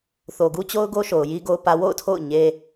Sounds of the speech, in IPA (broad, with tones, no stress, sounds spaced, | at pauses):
θ o˨ ɡ u˦ t͡ɕ o˦ ʊ̯ ɡ o˦ ʃ o˨ ʊ̯ j i˦ ɡ o˦ ʊ̯ p ä˦ w o̰˦˨ ʊ̯ tʰ o̰˦˨ ʊ̯ ɲ e˦